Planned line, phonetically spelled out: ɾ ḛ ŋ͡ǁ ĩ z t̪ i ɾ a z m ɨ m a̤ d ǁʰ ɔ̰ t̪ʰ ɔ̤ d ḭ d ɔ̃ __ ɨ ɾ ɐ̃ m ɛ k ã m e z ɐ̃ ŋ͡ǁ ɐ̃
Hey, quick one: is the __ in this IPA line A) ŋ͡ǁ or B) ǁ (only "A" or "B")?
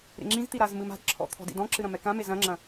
B